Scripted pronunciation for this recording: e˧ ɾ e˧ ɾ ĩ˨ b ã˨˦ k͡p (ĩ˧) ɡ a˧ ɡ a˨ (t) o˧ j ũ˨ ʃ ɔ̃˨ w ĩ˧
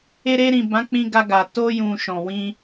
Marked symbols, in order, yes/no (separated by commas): yes, yes